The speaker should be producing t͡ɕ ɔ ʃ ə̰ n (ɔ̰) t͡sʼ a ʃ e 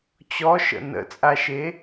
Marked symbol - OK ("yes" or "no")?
no